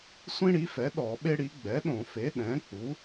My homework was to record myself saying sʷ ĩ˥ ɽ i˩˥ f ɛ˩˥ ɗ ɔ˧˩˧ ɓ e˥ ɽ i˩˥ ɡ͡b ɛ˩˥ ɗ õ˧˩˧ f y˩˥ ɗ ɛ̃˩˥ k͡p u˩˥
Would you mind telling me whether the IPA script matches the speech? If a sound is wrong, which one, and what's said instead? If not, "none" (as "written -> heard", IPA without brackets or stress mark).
y˩˥ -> e˩˥